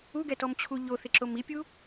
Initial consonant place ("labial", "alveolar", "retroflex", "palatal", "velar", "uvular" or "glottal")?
velar